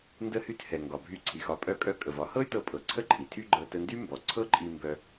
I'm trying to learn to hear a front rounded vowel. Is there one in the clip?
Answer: yes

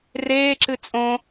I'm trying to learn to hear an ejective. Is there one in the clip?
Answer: yes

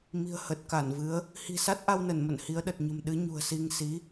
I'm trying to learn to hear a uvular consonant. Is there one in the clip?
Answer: no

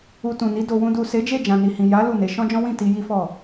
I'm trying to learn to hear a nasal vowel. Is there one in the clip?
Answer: yes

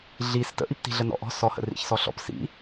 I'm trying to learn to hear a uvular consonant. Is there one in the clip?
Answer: no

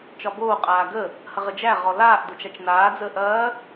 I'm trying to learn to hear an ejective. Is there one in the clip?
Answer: yes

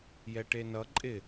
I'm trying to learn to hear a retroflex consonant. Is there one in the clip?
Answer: yes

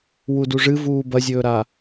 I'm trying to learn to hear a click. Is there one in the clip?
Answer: no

